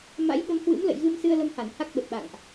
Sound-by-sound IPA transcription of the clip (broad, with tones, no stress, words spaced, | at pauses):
ma̰˧˥jɓə˨˦mhwɨ̰˧˥m lə̰˧˨jɣɨ˧msɨ˧ə̯ lə˧mha˧˩n ha˦˥k̚ɓə˨˩t̚ɓa̰˧˨ŋʔ